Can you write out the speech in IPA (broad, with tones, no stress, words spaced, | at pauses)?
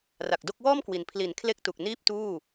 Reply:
ra˨˩k̚do˥˩k̚ wɔː˥˩mkwi˩˦n pʰli˩˦n kʰle˥˩k̚tu˨˩k̚ niː˥˩p̚ tuː˥˩